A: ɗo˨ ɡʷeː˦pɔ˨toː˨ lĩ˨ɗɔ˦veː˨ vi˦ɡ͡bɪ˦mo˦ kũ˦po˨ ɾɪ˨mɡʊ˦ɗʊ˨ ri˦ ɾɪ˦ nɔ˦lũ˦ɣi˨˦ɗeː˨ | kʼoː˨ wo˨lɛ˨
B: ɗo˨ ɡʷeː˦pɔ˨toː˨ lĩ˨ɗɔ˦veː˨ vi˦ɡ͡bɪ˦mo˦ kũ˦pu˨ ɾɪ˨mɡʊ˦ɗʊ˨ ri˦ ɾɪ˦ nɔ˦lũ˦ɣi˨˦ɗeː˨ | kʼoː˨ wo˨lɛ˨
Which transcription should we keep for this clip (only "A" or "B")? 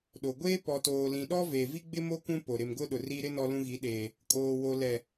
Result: A